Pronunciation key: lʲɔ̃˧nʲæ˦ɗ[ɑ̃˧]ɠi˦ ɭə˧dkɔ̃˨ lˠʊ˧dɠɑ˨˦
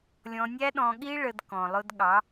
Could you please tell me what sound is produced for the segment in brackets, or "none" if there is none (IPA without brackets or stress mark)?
ɔ̃˧